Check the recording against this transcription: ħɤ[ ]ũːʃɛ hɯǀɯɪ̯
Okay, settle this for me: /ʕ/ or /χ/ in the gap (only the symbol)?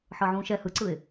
ʕ